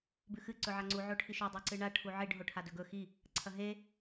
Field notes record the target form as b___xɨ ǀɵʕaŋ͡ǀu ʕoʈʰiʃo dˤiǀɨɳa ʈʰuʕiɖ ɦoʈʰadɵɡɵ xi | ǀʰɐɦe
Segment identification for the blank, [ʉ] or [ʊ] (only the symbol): ʉ